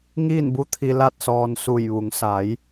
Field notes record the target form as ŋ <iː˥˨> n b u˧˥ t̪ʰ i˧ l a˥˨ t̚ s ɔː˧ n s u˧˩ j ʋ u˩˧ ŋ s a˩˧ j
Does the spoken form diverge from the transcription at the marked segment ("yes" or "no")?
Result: no